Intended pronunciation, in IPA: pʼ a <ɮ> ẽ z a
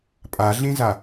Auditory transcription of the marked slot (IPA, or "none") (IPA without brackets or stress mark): ɮ